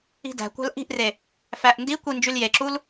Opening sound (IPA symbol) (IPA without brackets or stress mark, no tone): i̤